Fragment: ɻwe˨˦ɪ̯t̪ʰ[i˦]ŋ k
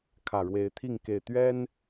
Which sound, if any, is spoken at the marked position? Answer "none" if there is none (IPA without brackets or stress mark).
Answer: i˥˨